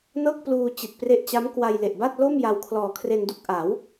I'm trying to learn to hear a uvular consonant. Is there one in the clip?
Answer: no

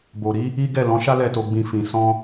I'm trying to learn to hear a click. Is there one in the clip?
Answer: no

